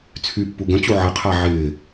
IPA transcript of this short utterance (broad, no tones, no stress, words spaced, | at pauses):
t͡sʰypːu ɡə̃t͡ɕu ʕəqʰa ʕɪː